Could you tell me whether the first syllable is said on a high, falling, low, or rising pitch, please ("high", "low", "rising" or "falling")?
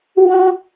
high